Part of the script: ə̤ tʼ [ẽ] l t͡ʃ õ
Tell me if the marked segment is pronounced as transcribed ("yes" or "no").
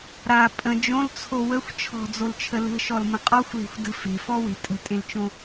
yes